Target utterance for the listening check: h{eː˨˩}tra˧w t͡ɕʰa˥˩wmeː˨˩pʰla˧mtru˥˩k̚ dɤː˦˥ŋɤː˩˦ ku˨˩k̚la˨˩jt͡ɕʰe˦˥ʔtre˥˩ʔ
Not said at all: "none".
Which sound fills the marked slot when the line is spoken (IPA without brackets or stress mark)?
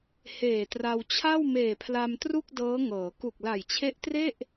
eː˨˩